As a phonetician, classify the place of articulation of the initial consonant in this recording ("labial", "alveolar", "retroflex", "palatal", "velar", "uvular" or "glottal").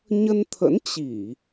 palatal